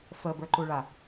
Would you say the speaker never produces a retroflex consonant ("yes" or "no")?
no